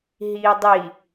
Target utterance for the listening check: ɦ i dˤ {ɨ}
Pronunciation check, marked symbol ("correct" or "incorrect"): incorrect